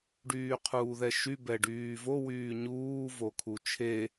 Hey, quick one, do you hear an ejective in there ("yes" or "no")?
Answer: no